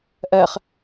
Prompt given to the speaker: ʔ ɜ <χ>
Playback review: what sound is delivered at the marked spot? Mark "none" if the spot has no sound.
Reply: χ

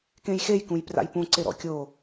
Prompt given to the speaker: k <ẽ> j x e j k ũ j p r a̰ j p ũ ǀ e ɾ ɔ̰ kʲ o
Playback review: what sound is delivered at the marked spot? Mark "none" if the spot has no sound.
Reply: ẽ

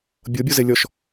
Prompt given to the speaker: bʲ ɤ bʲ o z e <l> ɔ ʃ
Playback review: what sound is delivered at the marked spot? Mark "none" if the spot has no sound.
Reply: lʲ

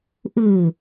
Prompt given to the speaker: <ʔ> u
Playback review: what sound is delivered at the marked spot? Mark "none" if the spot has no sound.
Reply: ʔ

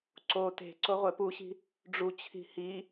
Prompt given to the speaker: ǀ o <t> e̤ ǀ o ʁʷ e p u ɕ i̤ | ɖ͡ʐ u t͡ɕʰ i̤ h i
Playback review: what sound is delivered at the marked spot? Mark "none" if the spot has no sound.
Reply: t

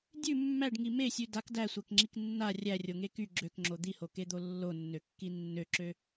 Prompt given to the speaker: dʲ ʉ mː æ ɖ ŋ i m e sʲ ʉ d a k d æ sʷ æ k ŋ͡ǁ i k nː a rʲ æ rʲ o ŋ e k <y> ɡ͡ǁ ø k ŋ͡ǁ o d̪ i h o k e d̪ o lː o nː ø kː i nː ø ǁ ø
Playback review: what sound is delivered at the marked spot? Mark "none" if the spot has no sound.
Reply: y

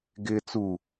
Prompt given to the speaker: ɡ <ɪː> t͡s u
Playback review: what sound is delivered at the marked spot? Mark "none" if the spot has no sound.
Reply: ɪː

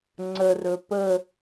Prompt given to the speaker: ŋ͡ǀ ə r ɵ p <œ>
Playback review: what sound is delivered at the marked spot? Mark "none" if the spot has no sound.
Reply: ə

